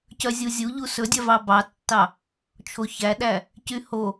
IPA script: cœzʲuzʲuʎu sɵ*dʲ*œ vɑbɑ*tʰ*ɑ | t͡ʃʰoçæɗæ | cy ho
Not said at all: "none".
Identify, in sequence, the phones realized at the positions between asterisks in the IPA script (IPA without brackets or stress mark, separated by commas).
dʲ, tː